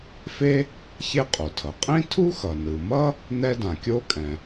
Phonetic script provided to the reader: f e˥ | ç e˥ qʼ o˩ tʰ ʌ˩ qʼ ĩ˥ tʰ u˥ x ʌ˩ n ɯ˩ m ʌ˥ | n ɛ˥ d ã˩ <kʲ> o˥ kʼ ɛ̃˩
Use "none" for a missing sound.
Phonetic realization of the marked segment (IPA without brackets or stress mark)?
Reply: kʲ